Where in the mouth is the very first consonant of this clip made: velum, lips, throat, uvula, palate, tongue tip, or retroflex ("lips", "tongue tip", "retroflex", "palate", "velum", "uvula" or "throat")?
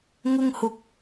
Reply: velum